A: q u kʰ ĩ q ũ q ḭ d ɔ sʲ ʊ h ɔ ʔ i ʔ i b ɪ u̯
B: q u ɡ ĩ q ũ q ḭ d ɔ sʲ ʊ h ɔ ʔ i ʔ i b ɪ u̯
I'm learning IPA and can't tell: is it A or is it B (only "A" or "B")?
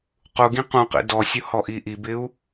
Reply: B